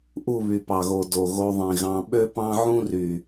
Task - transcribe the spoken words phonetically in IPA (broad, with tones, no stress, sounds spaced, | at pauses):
ʔ u˦˨ β y˨ p ɑ˨ ɣ o˨ d o˨ ɣ o˧ ðˤ ĩ˨ ɣ ɑ̃˧ ɓ ø˦ p ɑ̃˦ ʕ ũ˦ r y˨